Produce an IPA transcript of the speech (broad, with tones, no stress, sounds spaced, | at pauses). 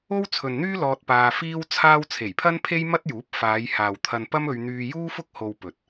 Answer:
o˥ w t͡sʰ ɵ˨ n n̪ yː˥ l ɔː˧ t̚ p aː˧ f iː˥ w t͡sʰ aː˥ w t͡sʰ e˨˩ j pʰ ɐ˥ n pʰ e˥ j m ɐ˥ t̚ j uː˨˥ p̚ f aː˨˧ j h aː˨ w t̪ʰ ɐ˧ n p ɐ˥ m ɵ˧ ɥ n̪ yː˧ j uː˥ f ʊ˥ k̚ h o˧ w p ɵ˨ t̚